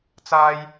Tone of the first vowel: high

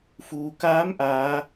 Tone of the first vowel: low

